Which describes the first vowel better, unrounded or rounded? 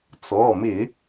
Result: rounded